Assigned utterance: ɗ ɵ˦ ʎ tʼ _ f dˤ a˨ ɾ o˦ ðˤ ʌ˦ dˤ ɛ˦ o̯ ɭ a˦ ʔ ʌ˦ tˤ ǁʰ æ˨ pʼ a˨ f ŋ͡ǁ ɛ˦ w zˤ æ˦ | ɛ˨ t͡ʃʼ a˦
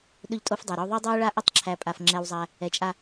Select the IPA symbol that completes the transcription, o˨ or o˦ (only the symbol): o˦